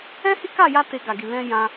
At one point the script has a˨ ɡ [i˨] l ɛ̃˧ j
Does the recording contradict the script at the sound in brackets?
no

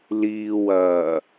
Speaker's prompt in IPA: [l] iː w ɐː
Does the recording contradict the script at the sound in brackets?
no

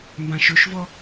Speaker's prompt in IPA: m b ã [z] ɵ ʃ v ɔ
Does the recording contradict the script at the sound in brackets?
yes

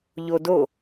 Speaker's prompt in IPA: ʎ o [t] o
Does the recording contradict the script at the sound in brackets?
yes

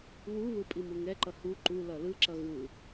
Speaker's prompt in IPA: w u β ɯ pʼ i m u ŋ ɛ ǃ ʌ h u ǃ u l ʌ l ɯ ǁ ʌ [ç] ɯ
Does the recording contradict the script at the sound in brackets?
yes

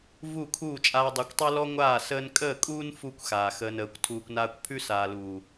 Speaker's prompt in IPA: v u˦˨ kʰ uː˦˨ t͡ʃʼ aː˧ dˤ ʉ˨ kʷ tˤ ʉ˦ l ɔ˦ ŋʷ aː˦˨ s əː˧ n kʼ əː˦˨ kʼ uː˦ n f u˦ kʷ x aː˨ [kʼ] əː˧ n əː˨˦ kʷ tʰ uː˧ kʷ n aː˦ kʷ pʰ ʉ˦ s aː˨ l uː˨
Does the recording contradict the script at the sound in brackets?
yes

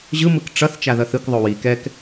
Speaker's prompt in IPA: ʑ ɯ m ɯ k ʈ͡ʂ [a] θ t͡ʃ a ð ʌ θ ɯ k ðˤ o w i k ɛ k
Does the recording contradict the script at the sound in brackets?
yes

